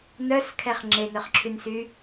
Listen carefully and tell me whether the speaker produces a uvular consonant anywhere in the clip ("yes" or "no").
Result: yes